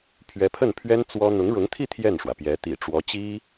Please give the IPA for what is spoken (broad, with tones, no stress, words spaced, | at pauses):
pʰɥɛ˧˥pʰə˥˩npʰɥɛ˥n t͡swɔ˥ n̪ʊ˧˥ŋɻʊ˧˥ŋt̪ʰi˥˧ t̪ʰjɛ˥˩nʂwä˩pjɛ˧˥ t̪ḭ˨˩ ʈ͡ʂwɔ˧˥t͡ɕi˥